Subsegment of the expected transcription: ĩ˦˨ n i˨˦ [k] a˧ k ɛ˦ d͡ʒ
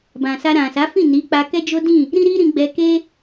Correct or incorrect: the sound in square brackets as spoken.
incorrect: k͡p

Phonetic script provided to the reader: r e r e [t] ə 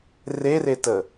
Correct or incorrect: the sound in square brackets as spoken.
correct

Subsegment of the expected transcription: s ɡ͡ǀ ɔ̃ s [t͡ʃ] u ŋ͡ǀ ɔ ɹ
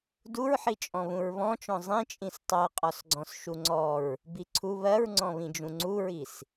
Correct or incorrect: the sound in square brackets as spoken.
incorrect: ʃ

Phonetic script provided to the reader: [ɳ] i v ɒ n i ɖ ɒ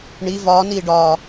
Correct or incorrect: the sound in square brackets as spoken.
correct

